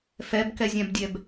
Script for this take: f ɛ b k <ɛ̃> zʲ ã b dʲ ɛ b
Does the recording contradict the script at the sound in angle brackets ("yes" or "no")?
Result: yes